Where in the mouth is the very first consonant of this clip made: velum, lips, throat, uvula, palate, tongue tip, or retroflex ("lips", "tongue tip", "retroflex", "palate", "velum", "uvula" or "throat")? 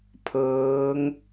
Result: lips